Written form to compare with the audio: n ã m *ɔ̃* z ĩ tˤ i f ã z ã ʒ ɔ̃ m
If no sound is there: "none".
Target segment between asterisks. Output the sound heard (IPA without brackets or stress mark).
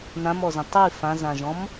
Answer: ɔ